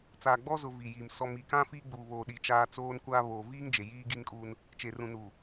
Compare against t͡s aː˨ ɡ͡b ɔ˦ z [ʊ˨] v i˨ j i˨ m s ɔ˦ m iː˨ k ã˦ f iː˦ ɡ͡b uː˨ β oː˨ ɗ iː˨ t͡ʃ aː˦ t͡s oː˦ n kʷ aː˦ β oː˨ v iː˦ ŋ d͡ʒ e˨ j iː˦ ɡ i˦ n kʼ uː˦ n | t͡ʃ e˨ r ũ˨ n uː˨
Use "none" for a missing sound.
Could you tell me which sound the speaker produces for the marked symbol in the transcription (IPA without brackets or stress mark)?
ʊ˨